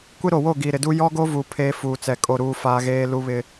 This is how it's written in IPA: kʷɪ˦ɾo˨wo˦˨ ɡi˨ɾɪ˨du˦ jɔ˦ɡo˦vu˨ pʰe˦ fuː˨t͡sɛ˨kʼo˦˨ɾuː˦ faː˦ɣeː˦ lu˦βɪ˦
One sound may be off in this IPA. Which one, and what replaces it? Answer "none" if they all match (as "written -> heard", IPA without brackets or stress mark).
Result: none